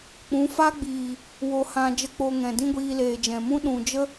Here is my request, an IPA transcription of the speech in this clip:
k͡p ũ˨˦ f a˦ ɡ͡b iː˨ | w o˧ h ã˧ d͡ʒ ə˦ k͡p o˧ ŋ ɛ̃˨ d ĩ˦ ɡʷ iː˧ l eː˨ d͡ʒ ɛ̃˨ m ũ˦ ɗ ũ˨ d͡ʒ ə˦

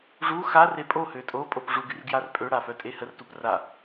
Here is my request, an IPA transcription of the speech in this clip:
ʐ u x a r e pʼ o h ø tʼ o pʼ o p ʐ u ɡ y r ɡ j a r pʼ ø ɽ a f œ tʼ e h ə r t u p r a

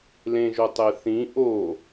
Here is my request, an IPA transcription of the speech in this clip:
l ẽ ʒ o tˤ e θ ĩ ʔ o

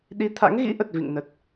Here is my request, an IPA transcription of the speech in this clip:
ɗ i˨˦ t̪ʰ a̰˧˥ ŋ ɣ ḭ˧˥ ʔ ə˨˩ t̚ v ḭ˧˨ ŋ n ə˨˩ t̚

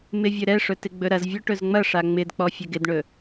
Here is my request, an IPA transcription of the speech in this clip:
m ɪ vʲ ɵ ɾ ɛ ʂ ɵ t ɪ ɡ͡b ɵ ɾ ɐ z vʲ ɔ ʈ ɵ z ŋ͡m ɐ ʂ a ŋ͡m ɪ d k͡p ɔ fʲ ɛ ɡ ɪ d ɳ ɵ

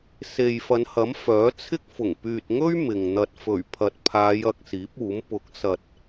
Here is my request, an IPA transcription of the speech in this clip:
s e˨ j f ɐ˨˧ n h ɐ˨˥ m f œː˨˥ t͡sʰ ɪ˥ k̚ f ʊ˨˩ ŋ p yː˨ t̚ ŋ ɵ˥ ɥ m ɪ˨ ŋ n̪ ɐ˧ t̚ f ɵ˨˩ ɥ pʰ ɐ˨ t̚ pʰ aː˨˧ j ɐ˨ k̚ s iː˨˥ p̚ uː˨˥ m p ʊ˨˥ k̚ s ɐ˨ t̚

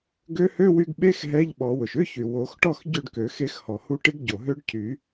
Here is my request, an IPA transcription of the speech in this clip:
ɡ ø˧˥ h ø˧˥˧ w y˧ ɡ ɓ e˧˥˧ x ɦ ɛ˧˥˧ ʎ ɓ ɔ˨˩˦ w ʊ˩ ʃ ʏ˧˥˧ ç y˩ w o˨˩˦ x ʈ ɔ˥˨ x ɟ ø˥˨ ɖ k ø˨˩˦ x e˧˥ x h ɔ˩ h u˧ ʈ ɪ˧˥ ɡ ɟ o˩ ɦ ø˧˥ ɖ cʰ y˨˩˦

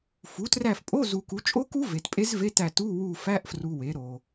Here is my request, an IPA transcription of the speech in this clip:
f u˩˥ t r æ˦˨ f pʼ o˧˥˧ z u˨ k u˩˥ t͡ʃʼ o˦˥ k u˦˥ v e˨ t pʼ e˦˥ z v e˧˥˧ t æ˦˨ t u˧˥˧ w u˦˨ f æ˧˥˧ ʔ f r u˨ w e˩˥ ɾ o˨

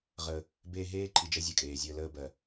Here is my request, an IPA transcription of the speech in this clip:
ʁ ə˦ | b e˦ ɦ eː˦ ǃʰ i˨ d͡ʒ ɜ˦ zʲ ɜ˨ kʼ eː˨ zʲ əː˦ l əː˦ b ɜ˨

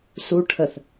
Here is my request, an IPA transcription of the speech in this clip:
s u ʈʰ ə θ

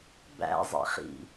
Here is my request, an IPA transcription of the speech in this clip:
b æ̰ zˤ ḛ χ ḭ

